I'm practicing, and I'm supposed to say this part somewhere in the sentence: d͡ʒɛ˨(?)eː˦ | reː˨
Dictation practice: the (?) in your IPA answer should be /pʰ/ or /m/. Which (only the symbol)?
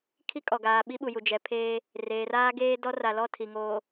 pʰ